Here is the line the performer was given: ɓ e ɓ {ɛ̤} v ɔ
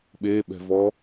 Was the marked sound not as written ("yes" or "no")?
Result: no